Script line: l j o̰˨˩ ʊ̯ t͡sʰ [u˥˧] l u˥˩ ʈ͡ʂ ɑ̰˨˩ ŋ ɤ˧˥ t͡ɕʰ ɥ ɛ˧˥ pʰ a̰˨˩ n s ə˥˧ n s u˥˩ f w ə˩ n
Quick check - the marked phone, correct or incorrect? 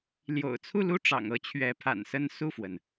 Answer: correct